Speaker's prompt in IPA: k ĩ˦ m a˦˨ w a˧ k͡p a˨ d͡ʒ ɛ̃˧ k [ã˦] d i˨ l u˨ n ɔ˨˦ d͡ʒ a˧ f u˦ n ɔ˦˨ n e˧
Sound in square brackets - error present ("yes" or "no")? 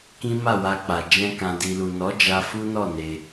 yes